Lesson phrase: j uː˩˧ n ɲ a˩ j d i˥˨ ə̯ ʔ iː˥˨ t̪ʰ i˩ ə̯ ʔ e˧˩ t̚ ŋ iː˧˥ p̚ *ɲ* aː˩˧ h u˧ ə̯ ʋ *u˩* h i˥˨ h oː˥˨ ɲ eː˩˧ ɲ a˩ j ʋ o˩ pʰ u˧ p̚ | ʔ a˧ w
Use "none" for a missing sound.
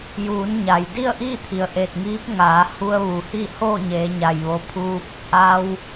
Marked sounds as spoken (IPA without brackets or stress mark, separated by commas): ŋ, u˩